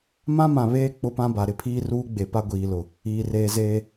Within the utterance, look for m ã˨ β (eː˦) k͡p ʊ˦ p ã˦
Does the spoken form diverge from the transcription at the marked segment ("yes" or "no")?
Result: no